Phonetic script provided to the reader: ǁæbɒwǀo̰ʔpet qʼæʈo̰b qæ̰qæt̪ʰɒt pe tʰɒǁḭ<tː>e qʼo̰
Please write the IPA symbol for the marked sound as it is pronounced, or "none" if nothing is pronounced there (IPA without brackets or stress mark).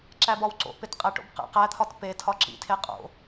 tʰ